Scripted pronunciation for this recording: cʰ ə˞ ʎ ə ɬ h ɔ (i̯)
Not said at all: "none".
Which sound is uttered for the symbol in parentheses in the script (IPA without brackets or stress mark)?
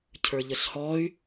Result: y̯